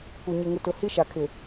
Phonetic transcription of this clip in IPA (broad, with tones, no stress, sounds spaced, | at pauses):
kʷ ɪ˨ ɲ ɪ˨ ŋ ɪ˨ t ʊ˨ h i˦ ʃ a˨ kʰ ɪ˨